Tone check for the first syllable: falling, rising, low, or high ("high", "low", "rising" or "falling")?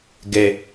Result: low